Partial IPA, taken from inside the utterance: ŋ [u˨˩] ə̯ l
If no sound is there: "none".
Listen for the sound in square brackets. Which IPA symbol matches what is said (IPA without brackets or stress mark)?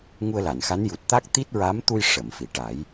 u˧